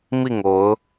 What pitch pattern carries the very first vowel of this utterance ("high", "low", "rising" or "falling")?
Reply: falling